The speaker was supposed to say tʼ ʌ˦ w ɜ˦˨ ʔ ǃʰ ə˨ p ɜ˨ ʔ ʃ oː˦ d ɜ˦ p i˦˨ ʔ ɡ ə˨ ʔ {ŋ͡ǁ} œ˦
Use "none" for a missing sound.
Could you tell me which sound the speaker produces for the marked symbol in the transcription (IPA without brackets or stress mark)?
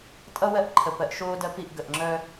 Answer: ŋ͡ǁ